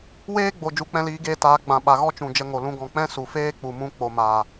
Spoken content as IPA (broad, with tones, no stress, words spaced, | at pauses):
weː˦ɡ͡bo˨ d͡ʒu˨˦k͡pɛ̃˧liː˨˦ɡeː˧ taː˨˦ ɡ͡bã˨ ɓa˨ɣɔ˦t͡ʃũ˨ d͡ʒə˧ŋo˨ lũ˧ɡɔ̃˨k͡pɛ̃˦ su˨ feː˦k͡pu˨mũ˧ k͡po˨maː˨